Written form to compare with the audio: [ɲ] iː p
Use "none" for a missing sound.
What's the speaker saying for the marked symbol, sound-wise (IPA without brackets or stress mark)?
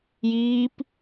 j